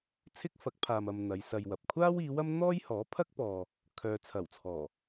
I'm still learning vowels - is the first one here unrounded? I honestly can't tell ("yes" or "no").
yes